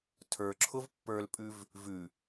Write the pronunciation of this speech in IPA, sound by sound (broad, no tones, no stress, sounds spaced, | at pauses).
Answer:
tʰ ə˞ ǁʰ ʊ v pː ə˞ l pʼ ʉ v | v ʉ